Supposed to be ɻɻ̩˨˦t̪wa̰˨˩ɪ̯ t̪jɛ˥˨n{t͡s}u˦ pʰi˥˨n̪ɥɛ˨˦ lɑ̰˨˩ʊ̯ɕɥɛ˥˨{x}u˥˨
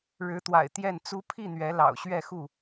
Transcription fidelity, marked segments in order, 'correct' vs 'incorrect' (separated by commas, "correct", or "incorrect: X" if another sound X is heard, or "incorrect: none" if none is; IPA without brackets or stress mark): correct, correct